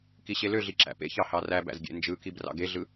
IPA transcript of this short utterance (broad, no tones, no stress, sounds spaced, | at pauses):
k i ɕ e l ø ɮ i ǁ æ̰ p ḛ ç ɑ h ɑ r æ b æ̰ z ɡʲ ḛ n d͡ʒ ɯ k i b r ɑ̰ ɡ e ɮ ɯ